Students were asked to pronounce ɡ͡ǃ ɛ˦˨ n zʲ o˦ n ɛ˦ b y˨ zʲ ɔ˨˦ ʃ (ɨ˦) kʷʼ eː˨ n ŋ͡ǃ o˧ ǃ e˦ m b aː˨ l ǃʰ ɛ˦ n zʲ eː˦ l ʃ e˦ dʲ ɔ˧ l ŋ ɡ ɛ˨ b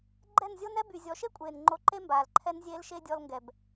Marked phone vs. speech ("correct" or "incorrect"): incorrect